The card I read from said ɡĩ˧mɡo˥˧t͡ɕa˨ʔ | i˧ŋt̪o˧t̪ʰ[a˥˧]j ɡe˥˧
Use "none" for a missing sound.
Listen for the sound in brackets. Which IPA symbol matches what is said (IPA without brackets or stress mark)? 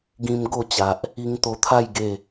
a˥˧